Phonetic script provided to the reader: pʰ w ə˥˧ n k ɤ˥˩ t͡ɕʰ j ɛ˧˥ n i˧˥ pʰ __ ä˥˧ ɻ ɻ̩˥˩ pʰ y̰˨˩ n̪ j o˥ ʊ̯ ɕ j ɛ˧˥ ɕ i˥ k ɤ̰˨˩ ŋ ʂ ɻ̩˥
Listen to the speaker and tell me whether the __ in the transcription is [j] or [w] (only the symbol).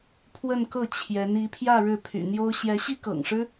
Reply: j